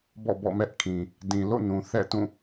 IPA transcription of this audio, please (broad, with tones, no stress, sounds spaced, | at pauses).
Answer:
b ɔ̰˦˨ b ɔ̰˦˨ m ɛ˦ ʔ kʰ ĩ˨ | d ĩ˨ l o̰˦˨ n ũ˨ θ ɛ̰˦˨ t ũ˦˨